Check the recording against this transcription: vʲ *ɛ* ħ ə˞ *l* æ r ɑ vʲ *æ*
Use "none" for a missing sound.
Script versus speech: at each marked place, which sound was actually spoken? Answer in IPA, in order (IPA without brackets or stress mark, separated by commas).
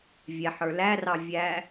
ɛ, l, æ